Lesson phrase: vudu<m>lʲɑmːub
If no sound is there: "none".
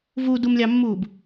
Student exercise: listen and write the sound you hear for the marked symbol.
m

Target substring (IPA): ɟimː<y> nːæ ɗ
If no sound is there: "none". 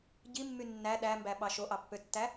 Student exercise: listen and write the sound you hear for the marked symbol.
y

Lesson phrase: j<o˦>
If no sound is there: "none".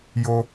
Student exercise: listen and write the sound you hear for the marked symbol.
o˦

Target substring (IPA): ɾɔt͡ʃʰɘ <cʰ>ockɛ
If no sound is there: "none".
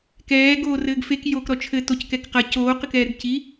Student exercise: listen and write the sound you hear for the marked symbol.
t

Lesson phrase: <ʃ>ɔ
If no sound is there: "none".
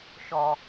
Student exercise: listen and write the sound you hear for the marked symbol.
ʃ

